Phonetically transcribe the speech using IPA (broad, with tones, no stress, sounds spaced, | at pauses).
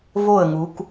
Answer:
v o˥˨ ə̯ ŋ u˨˦ k